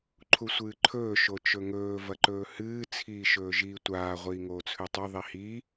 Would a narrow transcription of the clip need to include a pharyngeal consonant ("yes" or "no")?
no